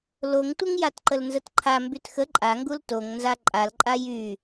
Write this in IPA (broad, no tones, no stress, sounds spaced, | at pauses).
l o ŋ tʷ ə ŋ j a t ǃ ə l n z ə t ǃʰ a m b y t x ə ǃʼ a ŋ ɡ u l t o ŋ n z a ǃʼ a l ǃʼ a j y